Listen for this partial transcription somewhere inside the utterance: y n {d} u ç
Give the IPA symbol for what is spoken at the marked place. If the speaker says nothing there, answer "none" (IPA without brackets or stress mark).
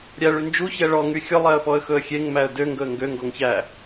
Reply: d͡ʒ